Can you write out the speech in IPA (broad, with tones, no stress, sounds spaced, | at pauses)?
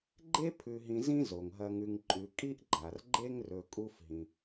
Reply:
ɡ͡ǃ e˥ pʰ ʉ˨ ɦ ĩ˨ z ĩ˥ z o˩ ŋ ɦ ɐ˨ ŋ ʉ˨ ŋ ǃʼ ʉ˨ kʼ i˥ ʔ ɡ͡ǃ a˩ r ɡ͡ǃ e˥ ŋ r ɵ˨ kʼ u˦ f ɦ ĩ˩